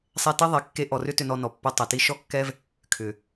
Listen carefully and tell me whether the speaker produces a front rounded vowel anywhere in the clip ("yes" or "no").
yes